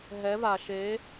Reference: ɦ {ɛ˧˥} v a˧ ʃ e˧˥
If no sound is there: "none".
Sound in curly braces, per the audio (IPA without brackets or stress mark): ɛ˧˥